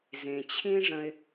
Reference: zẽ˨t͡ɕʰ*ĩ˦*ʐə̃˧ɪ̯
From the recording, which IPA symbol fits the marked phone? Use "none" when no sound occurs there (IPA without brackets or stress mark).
ĩ˦